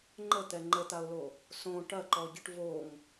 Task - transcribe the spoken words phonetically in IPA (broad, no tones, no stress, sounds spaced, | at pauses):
ŋ͡ǃ ə t̪ ɛ ŋ͡ǃ ə t̪ a ʊ̯ l o | s õ ʈ ɐ ǃ ɔ ɟ ə ʈ v o ŋ